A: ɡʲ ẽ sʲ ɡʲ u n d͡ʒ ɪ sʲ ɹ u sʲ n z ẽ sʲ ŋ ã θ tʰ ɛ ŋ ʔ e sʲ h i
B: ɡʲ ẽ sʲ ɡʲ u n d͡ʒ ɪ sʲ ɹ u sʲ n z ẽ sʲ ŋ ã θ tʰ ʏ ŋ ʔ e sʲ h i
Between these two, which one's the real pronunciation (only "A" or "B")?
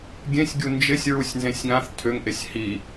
B